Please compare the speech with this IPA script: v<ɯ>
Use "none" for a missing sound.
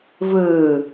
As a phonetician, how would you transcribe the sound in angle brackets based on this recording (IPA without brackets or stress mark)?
ɯ